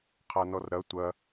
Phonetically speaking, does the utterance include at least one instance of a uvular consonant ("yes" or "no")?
yes